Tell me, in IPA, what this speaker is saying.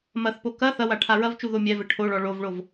m ɐ θ p o k ɐ θ ɐ w a ʈʰ a ɹ ɐ v t͡ʃ u ð o mʲ ɛ v ɘ ʈʰ o ɭ ɔ ɭ o v ɭ o v

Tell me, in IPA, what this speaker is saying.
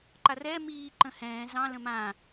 ǃ a r ɛː m iː ǃ ə̃ h ɛ̃ː z ɑ̃ l ə̃ m ã

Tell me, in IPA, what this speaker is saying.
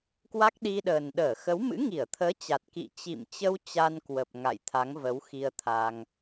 k w a˦˥ k̚ ɗ i˧ ɗ əː˨˩ n ɗ əː˧˩ x ə˨˦ w m ɨ̰˧˥ ŋ i˧˩ ə̯ t̪ʰ əː˨˦ t͡ɕ a˨˩ t̚ k ḭ˧˨ t͡ɕ ḭ˧˨ m t͡ɕ ə˧ w t͡ɕ a˧ n k w ə˨˩ p̚ ŋ a̰˧˨ j t̪ʰ a˨˦ ŋ v ə˨˦ w x i˧ ə̯ t̪ʰ a˧ ŋ

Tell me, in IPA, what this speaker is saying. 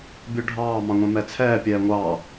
bʲ u ɖʱ ɑː m ɑ̃ ŋʷ ɛ̃ m ɛ t͡sʰ ɛː pʲ ɛː ŋʷ ɑː

